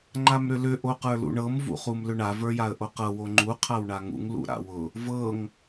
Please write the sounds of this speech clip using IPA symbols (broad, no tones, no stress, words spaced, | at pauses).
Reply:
ŋ͡ǃamɾʏlʏ ʔoqə˞lṵɳɤm vṵχumlʏɳa və˞jaə̯ʔoqɤ woŋ͡ǃu qʰawɳaŋṵŋ lṵɾa̰wʊ | vɤŋ